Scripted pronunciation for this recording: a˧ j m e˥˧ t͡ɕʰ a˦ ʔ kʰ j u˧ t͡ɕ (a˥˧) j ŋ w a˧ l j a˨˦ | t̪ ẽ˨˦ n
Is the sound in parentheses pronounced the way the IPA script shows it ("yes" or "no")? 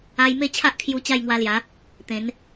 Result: yes